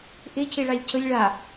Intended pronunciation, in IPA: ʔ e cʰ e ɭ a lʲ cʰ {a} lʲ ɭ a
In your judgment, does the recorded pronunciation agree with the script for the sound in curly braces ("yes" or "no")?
no